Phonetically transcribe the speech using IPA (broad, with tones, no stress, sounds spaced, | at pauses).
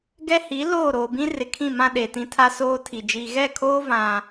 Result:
ɡ ɛ˦ h i˨˦ l oː˦˨ ɾ oː˨ b ĩ˦ r ɪ˨ kʰ ĩ˦˨ m ã˦ ɗ e˨ t ĩ˦ tʰ a˦ s oː˦ tʰ i˨ d͡ʒ i˨ ɣ ɛ˦˨ kʰ oː˦ v ã˦